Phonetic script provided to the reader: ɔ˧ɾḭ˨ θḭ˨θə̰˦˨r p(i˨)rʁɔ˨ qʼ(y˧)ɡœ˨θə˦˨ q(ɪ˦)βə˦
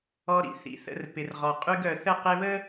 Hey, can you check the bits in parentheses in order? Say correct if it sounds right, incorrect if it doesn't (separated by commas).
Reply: incorrect, correct, incorrect